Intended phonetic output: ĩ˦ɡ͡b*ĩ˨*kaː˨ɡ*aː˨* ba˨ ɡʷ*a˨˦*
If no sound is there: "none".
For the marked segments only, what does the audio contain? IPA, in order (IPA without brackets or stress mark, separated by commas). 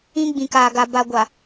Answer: ĩ˨, a˨, a˨